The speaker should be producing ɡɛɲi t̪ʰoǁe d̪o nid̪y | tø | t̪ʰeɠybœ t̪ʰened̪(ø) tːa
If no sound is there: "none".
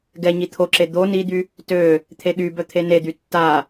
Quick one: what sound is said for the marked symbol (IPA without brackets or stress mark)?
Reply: y